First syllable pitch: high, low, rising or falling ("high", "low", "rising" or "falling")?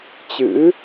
rising